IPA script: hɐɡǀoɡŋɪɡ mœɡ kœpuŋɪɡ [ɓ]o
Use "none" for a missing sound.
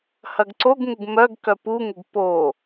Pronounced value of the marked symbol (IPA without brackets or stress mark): p